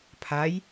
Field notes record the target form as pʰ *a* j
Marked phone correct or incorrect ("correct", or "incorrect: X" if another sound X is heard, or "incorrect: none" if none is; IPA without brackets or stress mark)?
correct